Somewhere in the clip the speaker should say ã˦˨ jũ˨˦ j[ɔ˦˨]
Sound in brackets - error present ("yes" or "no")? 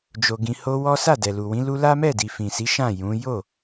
yes